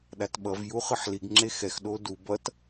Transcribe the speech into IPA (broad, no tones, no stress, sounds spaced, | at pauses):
ɗ a t ɓ ʌ v j u χ ɯ ħ l i ɡ ŋ͡ǁ e x ɛ x ɗ o d u b ʌ t